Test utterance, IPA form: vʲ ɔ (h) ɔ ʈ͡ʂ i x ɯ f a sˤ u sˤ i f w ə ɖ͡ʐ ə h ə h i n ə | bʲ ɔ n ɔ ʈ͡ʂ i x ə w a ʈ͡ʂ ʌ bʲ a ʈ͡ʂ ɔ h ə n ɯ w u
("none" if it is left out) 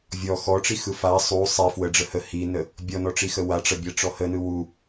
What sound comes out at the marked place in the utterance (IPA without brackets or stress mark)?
x